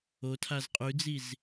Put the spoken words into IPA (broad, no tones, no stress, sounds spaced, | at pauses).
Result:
o tʰ a z qʼ ʉ d͡z i z